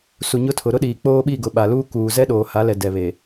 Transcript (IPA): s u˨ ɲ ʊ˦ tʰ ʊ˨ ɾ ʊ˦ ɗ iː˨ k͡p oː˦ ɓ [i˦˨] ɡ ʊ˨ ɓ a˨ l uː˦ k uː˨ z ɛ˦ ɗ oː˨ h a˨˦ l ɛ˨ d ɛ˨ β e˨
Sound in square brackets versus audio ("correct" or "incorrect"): correct